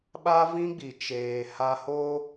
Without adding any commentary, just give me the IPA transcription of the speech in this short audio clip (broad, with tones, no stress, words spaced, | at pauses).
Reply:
ɓa˦vĩ˦ɡ͡bi˨ t͡ʃeː˨ ha˦ho˦